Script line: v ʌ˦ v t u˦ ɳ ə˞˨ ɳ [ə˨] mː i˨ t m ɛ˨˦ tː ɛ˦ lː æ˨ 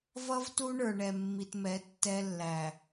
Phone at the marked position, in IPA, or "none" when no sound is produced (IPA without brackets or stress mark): ɛ˨